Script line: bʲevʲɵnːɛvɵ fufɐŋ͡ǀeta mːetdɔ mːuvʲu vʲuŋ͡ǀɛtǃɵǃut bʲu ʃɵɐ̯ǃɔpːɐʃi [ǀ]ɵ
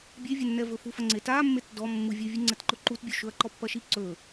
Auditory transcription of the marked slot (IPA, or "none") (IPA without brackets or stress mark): ǀ